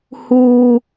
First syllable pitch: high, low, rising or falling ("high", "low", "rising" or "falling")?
low